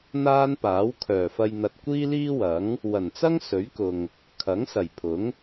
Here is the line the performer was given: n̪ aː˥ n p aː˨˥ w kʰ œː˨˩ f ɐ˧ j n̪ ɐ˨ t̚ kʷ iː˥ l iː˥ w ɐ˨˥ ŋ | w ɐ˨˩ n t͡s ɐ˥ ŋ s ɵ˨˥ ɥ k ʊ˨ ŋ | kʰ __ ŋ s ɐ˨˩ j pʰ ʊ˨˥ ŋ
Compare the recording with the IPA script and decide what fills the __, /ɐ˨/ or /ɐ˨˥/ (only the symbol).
ɐ˨˥